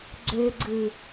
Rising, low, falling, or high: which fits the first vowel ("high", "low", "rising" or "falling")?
low